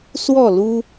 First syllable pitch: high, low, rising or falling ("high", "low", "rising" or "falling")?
falling